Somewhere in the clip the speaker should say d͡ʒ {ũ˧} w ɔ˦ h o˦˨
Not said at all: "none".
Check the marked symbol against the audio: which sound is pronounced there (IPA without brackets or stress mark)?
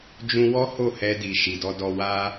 ũ˧